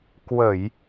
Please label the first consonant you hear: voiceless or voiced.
voiceless